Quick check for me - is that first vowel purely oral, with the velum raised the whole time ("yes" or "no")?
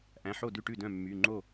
no